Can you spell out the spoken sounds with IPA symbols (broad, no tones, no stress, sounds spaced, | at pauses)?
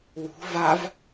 w ṳ v a v